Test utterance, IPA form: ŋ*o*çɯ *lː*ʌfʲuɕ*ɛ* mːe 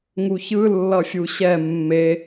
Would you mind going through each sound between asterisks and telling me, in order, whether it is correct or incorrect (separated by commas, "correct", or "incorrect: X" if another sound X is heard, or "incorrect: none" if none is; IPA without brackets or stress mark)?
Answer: incorrect: u, correct, correct